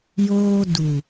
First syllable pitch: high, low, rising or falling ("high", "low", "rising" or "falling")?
high